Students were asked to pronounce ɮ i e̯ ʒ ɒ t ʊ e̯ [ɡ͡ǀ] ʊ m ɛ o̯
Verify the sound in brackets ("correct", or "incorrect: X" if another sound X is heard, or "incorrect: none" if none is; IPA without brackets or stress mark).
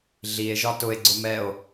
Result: correct